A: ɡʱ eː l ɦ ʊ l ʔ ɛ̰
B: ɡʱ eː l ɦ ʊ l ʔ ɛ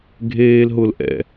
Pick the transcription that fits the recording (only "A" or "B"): A